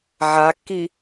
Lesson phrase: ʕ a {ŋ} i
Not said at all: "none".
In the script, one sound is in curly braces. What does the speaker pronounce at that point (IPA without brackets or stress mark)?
kː